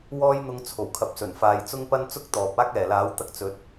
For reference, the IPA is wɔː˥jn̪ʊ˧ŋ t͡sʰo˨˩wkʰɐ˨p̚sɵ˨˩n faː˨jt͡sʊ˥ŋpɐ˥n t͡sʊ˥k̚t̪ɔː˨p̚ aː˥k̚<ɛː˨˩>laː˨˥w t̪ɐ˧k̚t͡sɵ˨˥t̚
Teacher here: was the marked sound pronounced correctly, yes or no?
yes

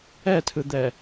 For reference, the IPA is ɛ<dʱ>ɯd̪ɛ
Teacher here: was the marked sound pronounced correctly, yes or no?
no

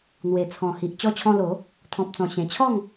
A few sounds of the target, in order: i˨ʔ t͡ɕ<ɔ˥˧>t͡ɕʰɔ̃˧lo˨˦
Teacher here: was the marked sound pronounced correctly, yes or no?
no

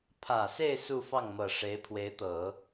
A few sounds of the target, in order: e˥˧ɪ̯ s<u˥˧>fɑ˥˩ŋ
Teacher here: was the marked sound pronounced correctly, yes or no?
yes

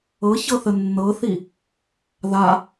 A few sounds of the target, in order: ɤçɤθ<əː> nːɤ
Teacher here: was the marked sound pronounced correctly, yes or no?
no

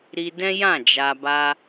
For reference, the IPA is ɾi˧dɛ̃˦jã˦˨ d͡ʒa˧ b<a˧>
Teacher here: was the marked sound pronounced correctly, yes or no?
yes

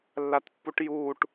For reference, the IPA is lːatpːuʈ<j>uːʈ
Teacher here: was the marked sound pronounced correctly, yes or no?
yes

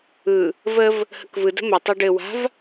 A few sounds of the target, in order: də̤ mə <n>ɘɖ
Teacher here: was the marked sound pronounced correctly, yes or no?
no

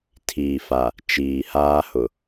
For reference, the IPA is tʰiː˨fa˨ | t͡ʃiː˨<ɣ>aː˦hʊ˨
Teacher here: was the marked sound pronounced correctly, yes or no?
no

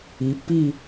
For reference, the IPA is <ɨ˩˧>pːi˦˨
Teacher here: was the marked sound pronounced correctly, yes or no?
no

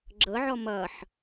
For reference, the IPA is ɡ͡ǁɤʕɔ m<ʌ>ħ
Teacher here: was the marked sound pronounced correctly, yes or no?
yes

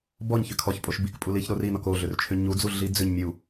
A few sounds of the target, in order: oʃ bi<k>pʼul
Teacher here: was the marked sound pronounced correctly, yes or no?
yes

